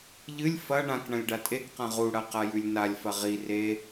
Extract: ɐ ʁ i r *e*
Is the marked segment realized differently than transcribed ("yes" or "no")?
no